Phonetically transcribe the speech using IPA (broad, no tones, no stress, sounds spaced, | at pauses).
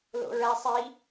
l o̰ ɹ æ sˤ i